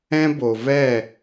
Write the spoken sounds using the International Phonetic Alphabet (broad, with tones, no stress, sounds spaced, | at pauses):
ɛ̃˦ b o˨ v ɛ˦˨